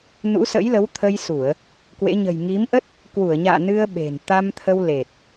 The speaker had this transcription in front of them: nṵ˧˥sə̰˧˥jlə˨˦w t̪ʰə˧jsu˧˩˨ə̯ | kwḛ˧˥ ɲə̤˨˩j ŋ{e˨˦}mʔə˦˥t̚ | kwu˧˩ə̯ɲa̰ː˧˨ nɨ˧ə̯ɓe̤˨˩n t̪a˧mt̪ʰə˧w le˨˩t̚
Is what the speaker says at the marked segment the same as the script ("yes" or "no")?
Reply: no